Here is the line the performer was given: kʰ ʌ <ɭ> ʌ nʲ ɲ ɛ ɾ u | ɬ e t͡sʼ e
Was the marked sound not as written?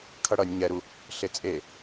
yes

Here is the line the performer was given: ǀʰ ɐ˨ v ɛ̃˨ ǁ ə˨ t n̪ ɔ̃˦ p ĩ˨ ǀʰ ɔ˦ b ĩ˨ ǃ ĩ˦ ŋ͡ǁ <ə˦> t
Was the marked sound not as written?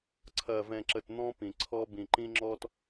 yes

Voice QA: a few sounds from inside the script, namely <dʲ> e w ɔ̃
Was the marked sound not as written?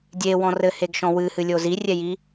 no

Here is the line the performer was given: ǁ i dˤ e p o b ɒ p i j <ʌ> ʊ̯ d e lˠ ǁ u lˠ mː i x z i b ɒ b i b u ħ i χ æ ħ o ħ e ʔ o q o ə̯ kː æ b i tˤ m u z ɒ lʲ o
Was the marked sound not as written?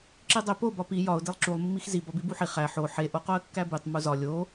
yes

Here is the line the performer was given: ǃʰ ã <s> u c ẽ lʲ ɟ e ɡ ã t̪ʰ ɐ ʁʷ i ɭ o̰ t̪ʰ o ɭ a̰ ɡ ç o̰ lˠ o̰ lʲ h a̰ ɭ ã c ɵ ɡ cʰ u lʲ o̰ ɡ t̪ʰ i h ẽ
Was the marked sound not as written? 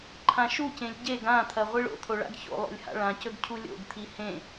yes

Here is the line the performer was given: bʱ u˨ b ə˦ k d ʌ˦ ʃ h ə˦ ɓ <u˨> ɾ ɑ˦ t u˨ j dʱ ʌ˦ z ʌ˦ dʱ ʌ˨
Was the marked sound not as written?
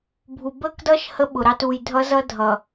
yes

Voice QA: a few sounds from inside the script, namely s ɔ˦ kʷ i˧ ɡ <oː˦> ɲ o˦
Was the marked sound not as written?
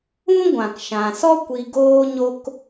no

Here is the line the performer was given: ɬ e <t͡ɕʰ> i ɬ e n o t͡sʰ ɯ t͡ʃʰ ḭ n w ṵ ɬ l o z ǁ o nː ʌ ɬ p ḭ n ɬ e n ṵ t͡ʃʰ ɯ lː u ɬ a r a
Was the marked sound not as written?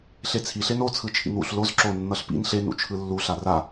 yes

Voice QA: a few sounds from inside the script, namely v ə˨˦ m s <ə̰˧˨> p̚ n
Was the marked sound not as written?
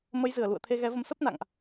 yes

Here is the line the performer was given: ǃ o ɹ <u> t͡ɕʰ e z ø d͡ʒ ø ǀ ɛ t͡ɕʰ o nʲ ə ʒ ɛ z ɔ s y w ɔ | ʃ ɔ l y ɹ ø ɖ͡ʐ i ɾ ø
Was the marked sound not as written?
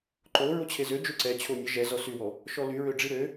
yes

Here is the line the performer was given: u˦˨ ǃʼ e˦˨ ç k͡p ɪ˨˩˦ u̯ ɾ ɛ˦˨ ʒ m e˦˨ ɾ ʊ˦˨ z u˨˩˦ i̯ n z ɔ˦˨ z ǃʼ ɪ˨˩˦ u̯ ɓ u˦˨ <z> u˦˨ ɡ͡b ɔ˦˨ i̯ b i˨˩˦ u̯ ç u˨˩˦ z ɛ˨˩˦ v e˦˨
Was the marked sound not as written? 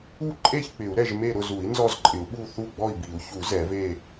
yes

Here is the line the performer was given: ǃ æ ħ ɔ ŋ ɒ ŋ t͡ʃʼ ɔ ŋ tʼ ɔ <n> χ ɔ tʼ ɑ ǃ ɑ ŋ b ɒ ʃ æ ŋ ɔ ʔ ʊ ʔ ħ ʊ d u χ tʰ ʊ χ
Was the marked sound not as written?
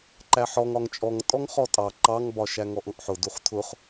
yes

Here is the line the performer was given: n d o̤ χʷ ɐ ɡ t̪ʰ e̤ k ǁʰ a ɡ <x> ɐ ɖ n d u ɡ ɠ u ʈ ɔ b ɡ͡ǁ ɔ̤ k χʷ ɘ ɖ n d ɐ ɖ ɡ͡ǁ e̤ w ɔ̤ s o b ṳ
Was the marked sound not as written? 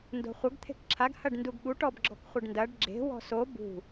yes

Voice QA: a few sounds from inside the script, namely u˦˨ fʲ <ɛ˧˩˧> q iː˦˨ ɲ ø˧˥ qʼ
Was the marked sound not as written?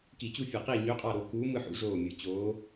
yes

